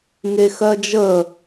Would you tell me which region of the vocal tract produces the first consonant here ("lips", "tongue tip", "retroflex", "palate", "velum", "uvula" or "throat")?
velum